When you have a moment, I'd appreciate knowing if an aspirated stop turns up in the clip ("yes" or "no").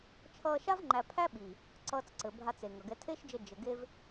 yes